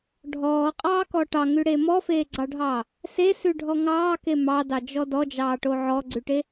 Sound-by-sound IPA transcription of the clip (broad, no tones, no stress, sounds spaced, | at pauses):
ɖʱ ɔː qʼ ɑː k ɔ ʈ ɑ ŋ ʉ ɽ eː m ɔ f eː ɡ͡ǀ ɑ ɖʱ ɑː | s e s ʉ ɖʱ ɔ ŋ ɑː k e m ɑ d ɑ d͡ʒ ɔ d ɔ d͡ʒ ɑː ʈ o ʕ ɔ ɡ͡ǀ ʉ ʈ e